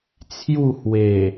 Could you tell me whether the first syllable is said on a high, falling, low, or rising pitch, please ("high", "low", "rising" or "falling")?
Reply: falling